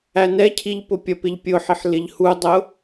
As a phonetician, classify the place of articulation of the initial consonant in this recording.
alveolar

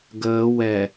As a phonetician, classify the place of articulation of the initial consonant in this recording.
velar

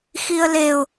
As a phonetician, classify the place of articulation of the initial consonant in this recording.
velar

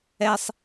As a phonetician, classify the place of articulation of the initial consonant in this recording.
alveolar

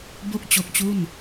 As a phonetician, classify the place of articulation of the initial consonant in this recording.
labial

